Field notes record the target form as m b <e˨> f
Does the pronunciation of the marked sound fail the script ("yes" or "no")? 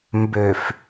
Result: yes